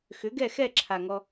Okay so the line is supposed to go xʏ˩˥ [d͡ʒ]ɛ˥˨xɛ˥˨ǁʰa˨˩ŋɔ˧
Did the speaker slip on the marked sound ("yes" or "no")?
yes